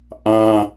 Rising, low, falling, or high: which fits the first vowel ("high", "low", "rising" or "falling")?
high